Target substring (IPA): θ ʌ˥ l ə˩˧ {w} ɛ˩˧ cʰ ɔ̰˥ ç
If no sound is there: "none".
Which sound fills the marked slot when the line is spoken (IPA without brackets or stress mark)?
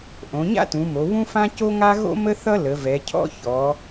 v